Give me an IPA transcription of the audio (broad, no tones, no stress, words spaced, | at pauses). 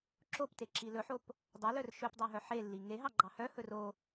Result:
ǁopteǁi lɵħop | dˤœlœr ʃɵpdˤœɦœ ħelːi ŋeɦɑɡ͡ǃɑ hœhɵr o